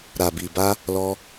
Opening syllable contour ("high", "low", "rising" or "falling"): low